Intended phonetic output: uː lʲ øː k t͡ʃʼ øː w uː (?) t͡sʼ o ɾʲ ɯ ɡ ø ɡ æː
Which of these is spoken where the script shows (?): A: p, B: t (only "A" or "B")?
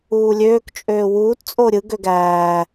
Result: B